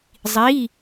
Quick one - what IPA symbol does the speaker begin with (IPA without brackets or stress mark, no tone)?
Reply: zˤ